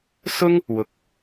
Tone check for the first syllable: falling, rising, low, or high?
high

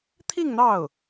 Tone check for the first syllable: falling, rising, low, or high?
falling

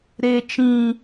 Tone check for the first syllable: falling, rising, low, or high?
low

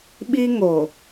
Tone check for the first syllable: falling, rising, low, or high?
high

